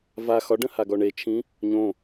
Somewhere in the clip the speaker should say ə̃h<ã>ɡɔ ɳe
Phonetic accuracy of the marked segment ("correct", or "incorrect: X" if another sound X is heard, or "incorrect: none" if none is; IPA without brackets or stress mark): incorrect: a